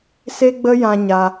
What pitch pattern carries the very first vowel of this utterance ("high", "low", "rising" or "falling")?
high